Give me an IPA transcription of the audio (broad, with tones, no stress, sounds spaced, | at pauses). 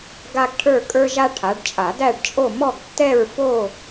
ɡ a˥ ɡ ʈʰ ə˞˥˧ kʼ ə˞˥ ʒ a˥ ʈʰ a˨˦ ɖ t͡ʃʼ a˨˩˦ d æ˥˧ ɖ t͡ʃʼ o˥˧ m ɔ˥˧ ɡ tː ɛ˥˧ ɹ f o˥˧